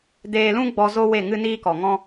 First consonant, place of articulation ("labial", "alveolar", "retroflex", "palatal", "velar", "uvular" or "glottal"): alveolar